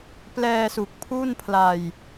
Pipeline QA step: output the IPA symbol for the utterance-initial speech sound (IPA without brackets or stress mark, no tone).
p